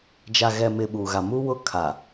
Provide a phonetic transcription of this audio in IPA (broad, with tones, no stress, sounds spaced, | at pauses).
d͡ʒ a˨ ɣ ɛ˨ m ɪ˨ ɓ u˨ ɣ a˨ m u˦ w ʊ˦ kʰ a˨